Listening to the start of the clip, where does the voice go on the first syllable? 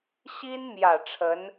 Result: high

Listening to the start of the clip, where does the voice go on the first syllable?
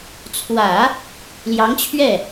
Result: low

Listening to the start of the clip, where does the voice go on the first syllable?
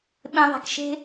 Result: low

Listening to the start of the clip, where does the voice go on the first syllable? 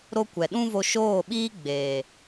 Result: high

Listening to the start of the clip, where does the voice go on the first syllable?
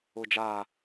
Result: low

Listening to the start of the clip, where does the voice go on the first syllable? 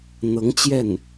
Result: rising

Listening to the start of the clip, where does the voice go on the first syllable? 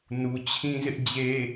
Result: low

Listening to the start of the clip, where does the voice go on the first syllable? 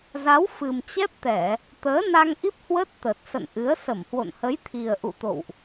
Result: rising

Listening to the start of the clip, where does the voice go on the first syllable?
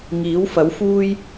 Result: rising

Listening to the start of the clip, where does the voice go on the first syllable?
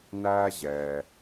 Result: high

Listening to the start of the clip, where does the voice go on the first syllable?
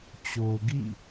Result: low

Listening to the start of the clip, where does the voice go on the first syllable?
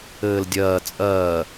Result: low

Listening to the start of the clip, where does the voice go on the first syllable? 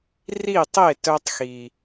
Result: falling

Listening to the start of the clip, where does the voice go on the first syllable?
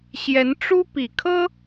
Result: rising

